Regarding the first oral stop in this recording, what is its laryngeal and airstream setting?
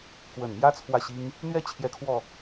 plain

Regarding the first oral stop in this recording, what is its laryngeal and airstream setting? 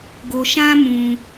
plain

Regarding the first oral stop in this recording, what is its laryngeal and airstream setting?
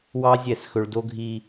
plain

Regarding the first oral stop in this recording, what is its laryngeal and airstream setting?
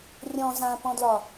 plain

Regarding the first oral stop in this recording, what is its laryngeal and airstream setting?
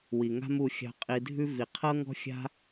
ejective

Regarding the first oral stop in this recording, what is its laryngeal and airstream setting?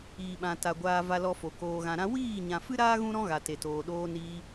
implosive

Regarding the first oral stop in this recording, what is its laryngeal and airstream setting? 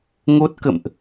plain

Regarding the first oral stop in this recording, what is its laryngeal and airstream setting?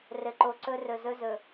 click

